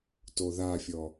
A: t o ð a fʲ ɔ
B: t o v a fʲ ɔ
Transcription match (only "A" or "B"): A